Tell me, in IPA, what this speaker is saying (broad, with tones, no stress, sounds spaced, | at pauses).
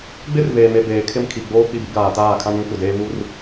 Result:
ɡ͡b ɪ˦ r v eː˨ m e˨ b eː˨ kʰ ɪ˦ m kʰ i˨ ɡ͡b oː˦ k͡p i˦˨ b i˦ ɡ aː˨ t aː˦˨ kʰ ã˦ n ũ˦ kʷ ɪ˨ d eː˦ β u˦ r